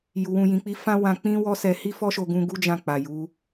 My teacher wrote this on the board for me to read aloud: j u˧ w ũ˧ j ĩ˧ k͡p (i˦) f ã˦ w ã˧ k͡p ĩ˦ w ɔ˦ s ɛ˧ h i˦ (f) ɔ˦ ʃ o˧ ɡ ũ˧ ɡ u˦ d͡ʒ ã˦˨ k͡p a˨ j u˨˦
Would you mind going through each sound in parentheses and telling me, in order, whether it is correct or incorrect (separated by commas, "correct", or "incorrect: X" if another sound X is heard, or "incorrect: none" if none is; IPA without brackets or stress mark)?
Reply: correct, correct